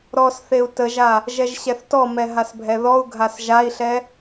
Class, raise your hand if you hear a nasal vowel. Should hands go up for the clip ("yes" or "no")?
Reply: no